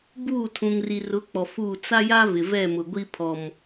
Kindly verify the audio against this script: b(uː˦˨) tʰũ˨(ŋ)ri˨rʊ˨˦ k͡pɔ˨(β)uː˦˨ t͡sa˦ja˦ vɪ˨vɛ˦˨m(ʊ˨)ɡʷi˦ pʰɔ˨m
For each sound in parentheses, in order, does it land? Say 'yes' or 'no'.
yes, yes, no, yes

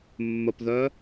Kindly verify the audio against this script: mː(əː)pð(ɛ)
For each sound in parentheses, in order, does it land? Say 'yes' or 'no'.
no, no

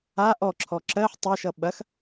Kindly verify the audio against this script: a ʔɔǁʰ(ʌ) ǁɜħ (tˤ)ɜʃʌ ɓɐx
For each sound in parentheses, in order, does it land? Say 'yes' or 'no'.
no, yes

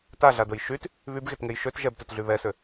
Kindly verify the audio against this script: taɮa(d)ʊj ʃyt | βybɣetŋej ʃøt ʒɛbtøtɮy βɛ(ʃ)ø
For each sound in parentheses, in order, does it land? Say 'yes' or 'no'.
yes, no

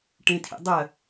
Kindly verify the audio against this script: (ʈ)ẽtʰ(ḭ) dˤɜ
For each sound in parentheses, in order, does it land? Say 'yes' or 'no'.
yes, yes

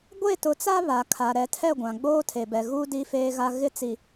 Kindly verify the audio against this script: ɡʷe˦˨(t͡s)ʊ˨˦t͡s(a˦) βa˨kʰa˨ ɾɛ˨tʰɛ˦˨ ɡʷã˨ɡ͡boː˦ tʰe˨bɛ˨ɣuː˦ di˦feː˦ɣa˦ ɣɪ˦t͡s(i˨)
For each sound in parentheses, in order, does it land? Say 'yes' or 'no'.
no, yes, yes

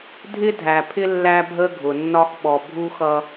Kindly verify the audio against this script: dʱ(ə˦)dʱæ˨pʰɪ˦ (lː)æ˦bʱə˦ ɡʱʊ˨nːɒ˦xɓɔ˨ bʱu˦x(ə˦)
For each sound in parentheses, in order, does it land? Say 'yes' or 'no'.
no, yes, no

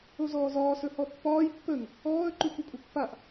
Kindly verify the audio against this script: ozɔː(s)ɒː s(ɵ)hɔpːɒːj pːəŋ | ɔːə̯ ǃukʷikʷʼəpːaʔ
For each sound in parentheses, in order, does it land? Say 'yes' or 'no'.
no, yes

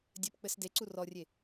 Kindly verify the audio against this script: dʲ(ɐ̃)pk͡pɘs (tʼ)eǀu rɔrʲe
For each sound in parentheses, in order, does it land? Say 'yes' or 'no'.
no, no

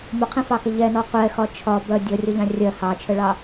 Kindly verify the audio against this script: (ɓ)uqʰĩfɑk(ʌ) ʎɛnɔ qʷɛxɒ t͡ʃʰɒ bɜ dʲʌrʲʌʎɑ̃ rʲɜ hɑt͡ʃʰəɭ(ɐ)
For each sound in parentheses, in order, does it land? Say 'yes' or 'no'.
no, no, no

